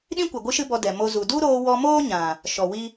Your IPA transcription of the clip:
ɗ ĩ˦ kʷ ɛ˨ ɡʷ ɨ˦ ʃ ɨ˦ b ɔ˧ d ɛ˨ m o˧ z u˨ d u˦ ɾ oː˧ w ɔ˧ m oː˦ ɲ ã˨ | ʃ ɔ˨ w i˦

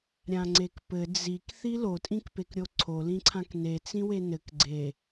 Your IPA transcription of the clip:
ɾʲ ã ŋ͡ǀ e k p ɘ d͡z i k θ i l o tʼ ĩ k p e k ɾʲ o ǀʰ o l ĩ ǀʰ ã k n e t͡s ĩ w e n ɘ k ɡ͡ǀ e

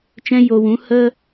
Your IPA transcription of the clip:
t͡ʃ ɛ̃˧ j o˨ w ũ˨˦ h ə˦

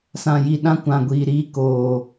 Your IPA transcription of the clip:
s ã˨ j i˨ ɗ ã˦ kʷ ã˨ ɡʷ iː˨ ɾ iː˦ k oː˨

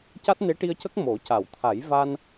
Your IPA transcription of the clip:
c a˦˥ t̚ n e˧˥ ʈ i˧ ə̯ c ə˦˥ k̚ m o˨˩˦ c a˨˩˨ w t̪ʰ a˨˩˦ j v a˧ n

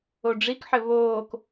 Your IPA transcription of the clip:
o ɖ͡ʐ i k ħ ɘ β oː k

